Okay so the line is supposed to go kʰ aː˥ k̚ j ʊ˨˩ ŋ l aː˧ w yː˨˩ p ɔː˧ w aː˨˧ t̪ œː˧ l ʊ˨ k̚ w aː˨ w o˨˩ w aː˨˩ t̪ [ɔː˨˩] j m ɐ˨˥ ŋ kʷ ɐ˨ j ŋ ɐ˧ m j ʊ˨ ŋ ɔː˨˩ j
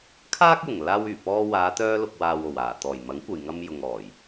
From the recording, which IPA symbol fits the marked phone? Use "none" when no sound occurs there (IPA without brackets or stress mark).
ɔː˨˩